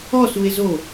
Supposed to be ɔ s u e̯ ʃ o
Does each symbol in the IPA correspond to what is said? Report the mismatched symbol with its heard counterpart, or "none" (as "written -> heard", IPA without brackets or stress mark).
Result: ʃ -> z